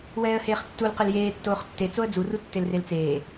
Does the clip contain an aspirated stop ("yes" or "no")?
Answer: no